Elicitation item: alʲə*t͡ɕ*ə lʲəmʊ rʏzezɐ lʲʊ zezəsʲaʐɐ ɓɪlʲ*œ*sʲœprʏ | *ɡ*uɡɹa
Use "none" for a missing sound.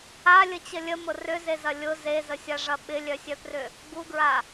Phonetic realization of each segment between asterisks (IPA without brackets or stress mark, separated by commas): t͡ɕ, œ, ɡ